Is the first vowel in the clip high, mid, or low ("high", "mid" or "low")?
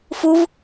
high